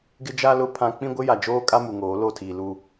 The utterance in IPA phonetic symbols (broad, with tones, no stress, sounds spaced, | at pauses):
ɡ ɪ˦ d͡ʒ a˦ l ʊ˦ pʰ ã˦ k͡p ĩ˦ ɡʷ ɪ˦ j a˨ d͡ʒ oː˦ kʼ a˦ m u˨ ŋ oː˨˦ l o˦˨ tʰ iː˨ l u˦